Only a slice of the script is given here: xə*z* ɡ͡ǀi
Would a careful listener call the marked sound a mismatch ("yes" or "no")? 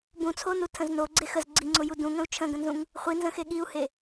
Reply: no